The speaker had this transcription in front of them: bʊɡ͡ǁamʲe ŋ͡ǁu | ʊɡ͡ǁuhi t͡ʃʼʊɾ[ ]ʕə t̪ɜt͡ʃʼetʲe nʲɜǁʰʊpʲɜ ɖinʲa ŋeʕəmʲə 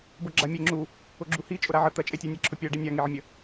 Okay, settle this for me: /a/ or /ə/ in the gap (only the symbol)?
a